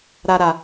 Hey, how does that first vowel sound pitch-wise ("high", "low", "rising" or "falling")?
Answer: low